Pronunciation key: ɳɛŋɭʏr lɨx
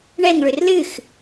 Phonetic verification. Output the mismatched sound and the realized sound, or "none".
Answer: none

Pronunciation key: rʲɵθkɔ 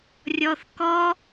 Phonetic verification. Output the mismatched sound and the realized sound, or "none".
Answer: ɵ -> ɔ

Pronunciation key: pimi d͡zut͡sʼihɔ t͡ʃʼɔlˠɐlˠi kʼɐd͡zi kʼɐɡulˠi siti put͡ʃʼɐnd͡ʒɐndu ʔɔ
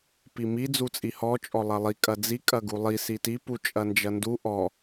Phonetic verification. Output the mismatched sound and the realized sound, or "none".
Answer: none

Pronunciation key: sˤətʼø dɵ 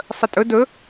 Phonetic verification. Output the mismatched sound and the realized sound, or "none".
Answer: ø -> ɵ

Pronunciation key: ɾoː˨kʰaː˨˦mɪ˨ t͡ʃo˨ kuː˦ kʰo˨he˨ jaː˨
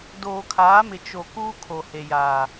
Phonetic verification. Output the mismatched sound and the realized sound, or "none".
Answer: ɾ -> d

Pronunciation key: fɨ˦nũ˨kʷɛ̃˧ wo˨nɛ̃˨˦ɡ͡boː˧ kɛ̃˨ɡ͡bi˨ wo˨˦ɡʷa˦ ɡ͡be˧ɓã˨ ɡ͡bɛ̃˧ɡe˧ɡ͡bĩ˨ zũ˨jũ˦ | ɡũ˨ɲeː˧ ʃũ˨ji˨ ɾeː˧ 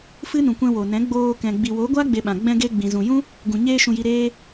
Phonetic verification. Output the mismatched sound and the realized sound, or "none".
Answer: none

